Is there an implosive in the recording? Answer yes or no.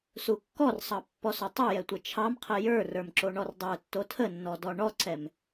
no